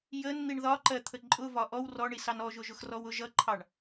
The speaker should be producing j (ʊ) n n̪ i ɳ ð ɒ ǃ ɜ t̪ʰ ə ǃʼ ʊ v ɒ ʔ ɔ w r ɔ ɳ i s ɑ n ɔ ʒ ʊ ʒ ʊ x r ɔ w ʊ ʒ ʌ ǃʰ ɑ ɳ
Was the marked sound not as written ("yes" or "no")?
yes